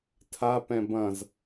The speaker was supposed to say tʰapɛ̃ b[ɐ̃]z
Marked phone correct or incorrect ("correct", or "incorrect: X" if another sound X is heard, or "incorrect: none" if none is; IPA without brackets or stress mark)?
correct